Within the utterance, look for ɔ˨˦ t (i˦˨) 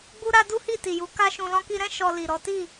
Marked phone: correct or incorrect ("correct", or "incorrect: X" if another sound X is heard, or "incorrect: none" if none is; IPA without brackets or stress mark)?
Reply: correct